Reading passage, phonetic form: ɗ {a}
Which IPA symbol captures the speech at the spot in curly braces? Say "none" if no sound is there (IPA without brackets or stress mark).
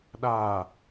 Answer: a